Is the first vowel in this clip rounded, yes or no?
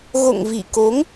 yes